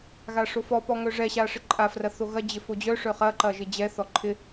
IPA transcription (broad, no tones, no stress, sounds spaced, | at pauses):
ɣ a ʂ o f ɔ p ɔ ŋ œ ʐ ɛ ɕ a ʂ ɪ ǃʼ a f r ɐ θ o ɣ ɐ d͡ʑ ɪ f o d͡ʑ œ ʂ œ χ ɐ ǃ ɐ ʒ ɪ d͡ʑ ɛ θ ɔ ǃʰ ɪ